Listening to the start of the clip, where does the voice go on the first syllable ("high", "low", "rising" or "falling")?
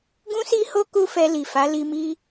high